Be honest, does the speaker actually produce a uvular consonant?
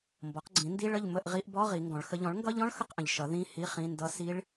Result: yes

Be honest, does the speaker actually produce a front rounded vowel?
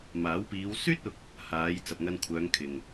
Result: yes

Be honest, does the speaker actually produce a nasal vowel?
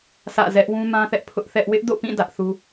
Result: yes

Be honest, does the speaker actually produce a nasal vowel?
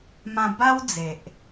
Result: yes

